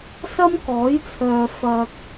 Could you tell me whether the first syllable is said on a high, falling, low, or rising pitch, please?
high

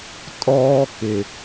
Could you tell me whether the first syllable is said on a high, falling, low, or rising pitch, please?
high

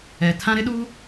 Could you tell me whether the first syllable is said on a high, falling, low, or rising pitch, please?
low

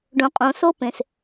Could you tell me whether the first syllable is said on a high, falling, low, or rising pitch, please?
low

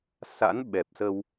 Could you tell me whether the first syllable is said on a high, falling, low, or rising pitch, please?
rising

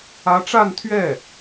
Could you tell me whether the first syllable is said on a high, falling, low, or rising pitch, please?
rising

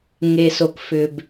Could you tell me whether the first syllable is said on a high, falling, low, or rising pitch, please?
low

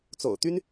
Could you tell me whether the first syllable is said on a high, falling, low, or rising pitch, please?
low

